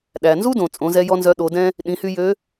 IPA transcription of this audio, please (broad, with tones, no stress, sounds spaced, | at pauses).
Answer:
ɗ æ˩ n z u˥ d õ˩ t͡sʼ õ˩˧ z ɛ˧ j ɔ˥ n z œ˧˥ ɗ o˩˧ d ɛ̃˥ | ɗ ĩ˩˧ h y˧ j ø˧˥